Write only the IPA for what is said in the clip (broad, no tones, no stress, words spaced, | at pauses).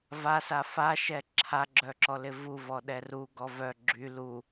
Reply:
vasa faʃɛ ǁʰaɡ͡ǁœǁɔlɪ vuvɔɗɛ ruɡɔ vœ ɡ͡ǁy lu